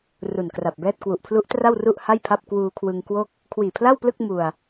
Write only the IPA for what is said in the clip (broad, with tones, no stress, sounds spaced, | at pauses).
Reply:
r u˨˩ n k r a˨˩ p̚ b ɛː˥˩ t̚ k w u˨˩ ʔ pʰ l u˦˥ ʔ t r a˥˩ w r u˥˩ ʔ h a˥˩ j pʰ a˥˩ p̚ k w uː˧ kʰ w ɯ˧ ŋ k w o˥˩ k̚ | kʰ w iː˨˩ pʰ l a˥˩ w p l ɯ˥˩ k̚ m u˧ a̯